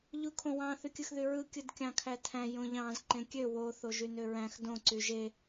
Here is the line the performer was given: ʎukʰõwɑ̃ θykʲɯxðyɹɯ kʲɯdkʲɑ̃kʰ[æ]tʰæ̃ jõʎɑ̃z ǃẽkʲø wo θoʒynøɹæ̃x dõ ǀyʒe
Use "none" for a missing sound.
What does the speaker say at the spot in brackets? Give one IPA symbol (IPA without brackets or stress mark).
æ